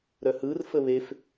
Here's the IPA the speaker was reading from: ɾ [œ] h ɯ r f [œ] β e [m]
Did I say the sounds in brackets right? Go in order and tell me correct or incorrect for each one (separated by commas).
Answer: correct, incorrect, incorrect